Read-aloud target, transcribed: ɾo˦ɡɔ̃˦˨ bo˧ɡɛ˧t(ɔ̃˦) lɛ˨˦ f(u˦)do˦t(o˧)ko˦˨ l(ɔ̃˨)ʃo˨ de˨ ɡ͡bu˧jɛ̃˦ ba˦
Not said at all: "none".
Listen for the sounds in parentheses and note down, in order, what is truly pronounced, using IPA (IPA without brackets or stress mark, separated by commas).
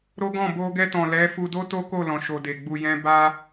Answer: ɔ̃˨, u˧, o˦, ɔ̃˨